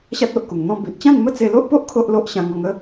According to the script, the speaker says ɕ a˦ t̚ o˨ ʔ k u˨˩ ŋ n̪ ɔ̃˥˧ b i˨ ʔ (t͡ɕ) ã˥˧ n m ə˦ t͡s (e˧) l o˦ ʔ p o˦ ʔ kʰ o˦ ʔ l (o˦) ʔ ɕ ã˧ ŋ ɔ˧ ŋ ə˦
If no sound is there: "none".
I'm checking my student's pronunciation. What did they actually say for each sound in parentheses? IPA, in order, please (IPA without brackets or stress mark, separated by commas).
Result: t͡ɕ, e˧, o˦